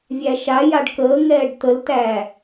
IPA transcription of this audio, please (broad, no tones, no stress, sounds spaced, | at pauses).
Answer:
vʲ æ ʃ a j a ɖ k əː ŋ ɛː ɖ t̪ ə l t æ